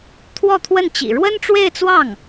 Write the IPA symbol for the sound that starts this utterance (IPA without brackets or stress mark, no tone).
t̪ʰ